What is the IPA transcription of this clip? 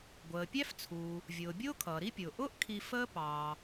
ɡʷ əː˩ pʲ æ˥ f t͡sʰ uː˩ | vʲ ʊː˩ bʲ ʊː˥ kʰ ʌː˩ ɾ i˥ pʲ ʊː˩ ʔ ʊː˥ ʔ kʰ i˧ f əː˥ p ɑː˩

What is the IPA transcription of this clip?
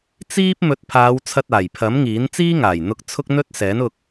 t͡s iː˥ p̚ m ɵ˨˥ t̚ pʰ aː˨˧ w t͡sʰ ɐ˧ t̚ aː˨˩ j pʰ ɐ˨˥ m ŋ iː˨˥ n t͡s iː˥ ŋ aː˨˩ j n̪ ʊ˧ k̚ t͡sʰ ʊ˥ k̚ n̪ ɵ˥ t̚ s ɛː˨˥ n ʊ˧ k̚

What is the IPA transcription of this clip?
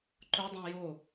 ǃ ʊ dˤ ĩ j o

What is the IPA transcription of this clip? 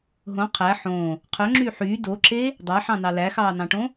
ɦ õ qʰ æ ħ õ | qʰ œ ŋ͡ǁ yː ħ yː d o ǁ e | dˤ æ ħ ɑ̃ n ɑ l æ x ɑː n ɑ̃ ʈ õ

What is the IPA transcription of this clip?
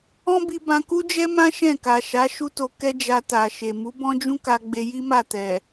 ɔ̃˦ b i˧ b ã˧ k u˦ d͡ʒ ɛ˦ m ã˦ ʃ ɛ̃˦˨ k a˨ ʃ a˨˦ ʃ u˦ t o˧ k ɛ˦ d͡ʒ a˧ t a˨ ʃ e˨ m u˨˦ b ɔ̃˦ d͡ʒ ũ˦ k a˧ ɡ͡b e˧ j i˦ m a˦˨ t ɛ˨

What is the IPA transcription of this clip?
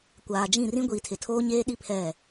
kʷ aː˨ d͡ʒ ĩ˦˨ r ĩ˦ ɡʷ iː˨ tʰ ɪ˨ tʰ oː˦ ɲ eː˦ ɗ i˦ pʰ ɛ˦˨

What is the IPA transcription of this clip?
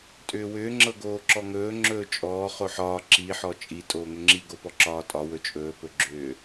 tʼ ʏː w ʏː ŋ͡ǁ ɤ ɡ oː ǁ ɔ ŋ ɵː ŋ͡ǁ ɵː t͡ʃʼ ɔː χ o ħ ɒː ǁ i ħ ɔ t͡ʃʼ i tʼ oː ŋ ʏ ŋ͡ǁ i ɡ o p ɔ ǁ ɒː tʼ ɒ w ɵ t͡ʃʼ ɵː p ɵ ɡ͡ǁ ʏː

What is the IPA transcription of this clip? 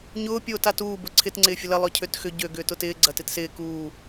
ɲ ʊː pʲ oː t a t uː b ʊ ǀʰ ɪ t ŋ͡ǀ ɪː fʲ ʊ l ɐ lˠ œ cʰ ø t x ʏ ɟ ø ɡ ʏː t ʊ t ɪː ɡ͡ǀ ɐ t ɪ t s ɪː k uː

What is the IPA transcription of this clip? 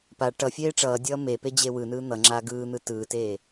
p a ʈ ʌ fʲ eː ʈ͡ʂ ʌː dʲ ʌː m e p e d͡ʑ e w ɯ n ɯː n̪ ʌ ŋ͡ǁ aː ɡ ɯː n̪ ɯ t ɯː t eː

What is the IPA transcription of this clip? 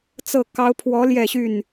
t͡s ɤ˥˨ k ɑ˨˦ ʊ̯ pʰ w ɔ˨˦ l j ɛ˥˨ ɕ y˥˨ n

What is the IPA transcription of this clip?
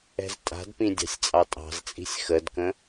ɛ̤ z tʼ a̤ d p ĩ dʲ ɑ̤ sʲ t͡sʼ ɑ tʼ ɑ̤ z t͡sʼ i̤ sʲ x ə d k ə̃

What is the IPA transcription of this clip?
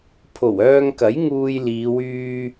pʰ o˨˩ w œː˧ ŋ k ɐ˨˥ j ŋ uː˧ j l iː˨˧ w yː˥

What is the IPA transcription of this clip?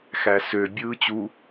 x æ s ø bʲ ɯː t͡ɕ u

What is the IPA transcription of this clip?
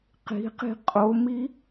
q i̤ q i̤ qʼ o m i

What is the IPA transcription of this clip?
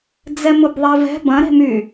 d͡z ɛ m ʊ b ðˤ ɛ v ɛ̤ b ɐ̃ ɾ e̤ m y

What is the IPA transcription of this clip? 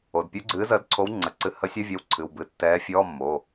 o˩˧˩ d pʲ u˨˥ ɡ͡ǀ ɨː˨˥ z əː˨˥ d ǀʰ o˨˥ w ŋ͡ǀ ə˩˧˩ ǀ ɨ˨˥ h ə˨˥ sʲ œ˧˥˧ vʲ ɛ˨˥ w ǀʰ ɨ˩˧˩ w b ɨ˩˧˩ tː ɛː˨˥ fʲ ɔː˧˥˧ mː o˩˧˩

